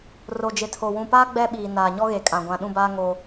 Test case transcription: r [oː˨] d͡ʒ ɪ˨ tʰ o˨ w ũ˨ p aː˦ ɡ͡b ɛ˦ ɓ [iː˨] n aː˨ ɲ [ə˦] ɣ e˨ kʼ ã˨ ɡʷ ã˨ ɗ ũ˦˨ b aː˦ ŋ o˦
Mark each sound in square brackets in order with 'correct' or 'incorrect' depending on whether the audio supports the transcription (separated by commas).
incorrect, correct, incorrect